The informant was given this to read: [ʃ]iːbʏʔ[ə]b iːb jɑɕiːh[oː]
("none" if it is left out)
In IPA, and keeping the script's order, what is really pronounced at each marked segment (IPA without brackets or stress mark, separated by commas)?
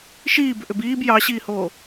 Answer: ʃ, ʏ, oː